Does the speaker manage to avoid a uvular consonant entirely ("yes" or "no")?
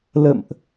yes